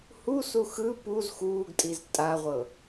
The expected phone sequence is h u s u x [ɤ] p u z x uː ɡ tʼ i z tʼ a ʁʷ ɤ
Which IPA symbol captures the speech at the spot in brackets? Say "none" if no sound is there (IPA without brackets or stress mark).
ɯ